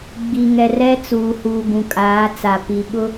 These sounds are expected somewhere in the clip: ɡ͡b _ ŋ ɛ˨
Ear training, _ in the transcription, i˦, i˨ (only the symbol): i˨